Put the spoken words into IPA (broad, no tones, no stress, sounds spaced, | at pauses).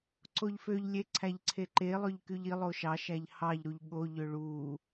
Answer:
ǀ o ʎ f ø ʎ lʲ e ǀʰ æ ʎ ǀʰ e ǃ e lˠ ø ʎ k y ʎ i lˠ o ʃ ɑ ʃ æ ʎ h ɑ ʎ ɾ u ʎ ɠ o ʎ ø ɭ u